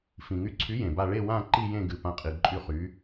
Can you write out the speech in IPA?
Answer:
f ĩ˩ ŋ y˨˥ ǀʰ y˨˥ j ẽ˩ b a˦˨ ɭ e˦˨ w ã˦˨ ǃ i˦˨ j ẽ˦˨ ɡ ɨ˩ p ã˨˥ qʼ i˩ ǃʼ y˦˨ χ y˨˥

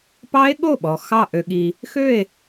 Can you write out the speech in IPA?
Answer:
p ɑ˦˥ e̯ ɠ o˥˩ ɓ ɔ˩ x ɑ˧˩ ʔ ø˩ ɠ i˩ | x ø˥˩ e̯

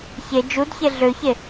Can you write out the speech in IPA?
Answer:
ç e d͡ʒ u d ç e ɮ ø ç e

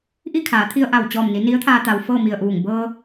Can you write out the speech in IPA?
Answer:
ʔ i˥˨ kʰ aː˩˧ t̪ʰ i˧ ə̯ ʔ a˧˩ w t͡ɕ ɔː˧˩ m n i˩˧ n i˧˥ ə̯ t̪ʰ aː˧ t̪ a˩ w f ɤː˥˨ m i˧˩ ə̯ ʔ uː˧˩ ŋ b ɤː˧

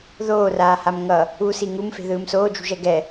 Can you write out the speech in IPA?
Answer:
ð oː r aː h a m ŋ ʌ | u s i ŋ u m f e̤ ð ɯː m s oː d͡ʒ ṳ ʒ ɛ ɡ ɛ

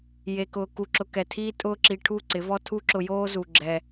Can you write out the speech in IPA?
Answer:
j e˧ k ʊː˧ k u˧ ǁ ʊ˧ k ɛ˨ tʰ iː˦ tʼ ʊː˦ ǁ i˧ ʈʰ u˦˨ ǀ ɪ˨˦ v ɔ˦ tʰ u˦ ǁ ʊ˧ j oː˦ z u˨ ɡ͡ǁ ɛ˧

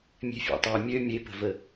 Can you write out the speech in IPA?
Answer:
mʲ e̤ fʲ ḛ tˤ e mʲ ø mʲ e p ə̤ v ə

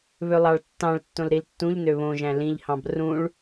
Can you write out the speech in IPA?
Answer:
β ø lˠ ɑ ɭ tː ɑ̃ ɭ tː õ l ɾ i l tː ũ ʎ n ø β õ ʒ æ̃ l ĩ ʎ h ɑ̃ b r ũ ɭ

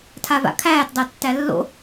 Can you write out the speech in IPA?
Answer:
tʰ a v a̰ kʰ æː t dˤ æ tː æ lː o̰

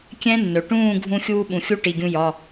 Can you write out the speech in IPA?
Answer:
kʲ ɛ̃˦˥ nː ɵ˩ ʈ ũː˥˨ ɡʱ ũ˧ xʲ uː˧ ɓ ũ˩ xʲ u˦˥ ʈ i˩˧˩ ɡʲ ũ˧ j ɒ˩˧˩

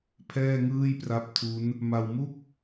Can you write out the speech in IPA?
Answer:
pʰ ɛː˥˩ ŋ ɯː˥˩ j p r a˦˥ p̚ tʰ u˦˥ n | m a˧ w m u˥˩ k̚

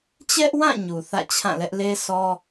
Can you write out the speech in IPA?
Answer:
t͡ɕ ɛ˦ ʔ w ã˦˨ ɲ u˨ θ ä̰˦˨ t͡ɕʰ ã˦˨ l ɛ˦ ʔ l e˦ sʰ ɔ˦

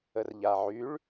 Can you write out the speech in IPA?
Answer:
ə r ʎ a ʕ y ɭ

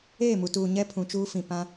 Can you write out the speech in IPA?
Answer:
eː˦˨ m u˨ t uː˨ ɲ ɛ˦ pʰ ũ˨ t͡ʃ uː˦ f ĩ˨ p ã˦

